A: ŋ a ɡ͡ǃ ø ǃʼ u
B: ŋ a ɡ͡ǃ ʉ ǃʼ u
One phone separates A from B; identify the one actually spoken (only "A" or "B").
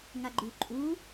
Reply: B